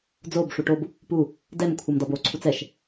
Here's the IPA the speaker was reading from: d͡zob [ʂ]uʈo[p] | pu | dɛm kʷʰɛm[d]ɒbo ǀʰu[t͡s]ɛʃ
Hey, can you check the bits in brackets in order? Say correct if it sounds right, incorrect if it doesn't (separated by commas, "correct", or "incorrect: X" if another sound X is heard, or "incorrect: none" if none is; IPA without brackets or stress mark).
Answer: correct, incorrect: b, correct, correct